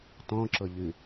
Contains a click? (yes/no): yes